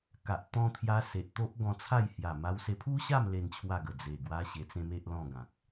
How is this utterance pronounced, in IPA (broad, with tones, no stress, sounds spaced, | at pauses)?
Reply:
k a˨ ʔ t̪ ɔ̃˧ t̪ʰ j a˧ s e˨ ʔ t̪ o˦ ʔ ɡ ɔ̃˧ t͡sʰ a˥˧ j h j a˨˩ m a˧ w s e˧ pʰ u˦ ɕ a˥˧ m l e˥˧ n t͡ɕʰ w a˥˧ ɡ ə˨˩ d͡z e˨˩ ɡ w a˦ ɕ e˧ t͡s ẽ˦ m e˦ ʔ l ɔ̃˥˧ ɡ ã˨ k̚